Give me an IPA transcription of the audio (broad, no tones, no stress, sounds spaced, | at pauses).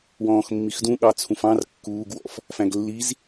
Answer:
w ɔ̃ː x mː i x d ũ ɠ ɑ t͡sʰ ũ f ɑ̃ r kː uː ɡ w ɔ̰ f | f æ̃ ɡ lː i z